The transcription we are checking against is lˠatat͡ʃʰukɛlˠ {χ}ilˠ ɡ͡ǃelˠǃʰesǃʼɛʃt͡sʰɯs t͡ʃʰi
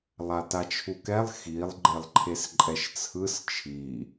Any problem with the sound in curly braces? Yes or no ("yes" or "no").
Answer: yes